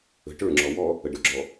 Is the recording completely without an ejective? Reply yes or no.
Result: yes